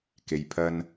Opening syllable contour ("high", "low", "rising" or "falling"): low